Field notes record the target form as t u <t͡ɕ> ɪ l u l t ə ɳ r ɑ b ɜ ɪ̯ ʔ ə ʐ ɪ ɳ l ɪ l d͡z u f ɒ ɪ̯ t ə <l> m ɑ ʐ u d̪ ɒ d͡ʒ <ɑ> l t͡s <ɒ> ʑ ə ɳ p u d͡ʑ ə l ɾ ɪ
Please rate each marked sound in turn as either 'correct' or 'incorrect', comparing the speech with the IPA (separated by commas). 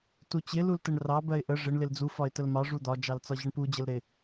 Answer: correct, correct, correct, correct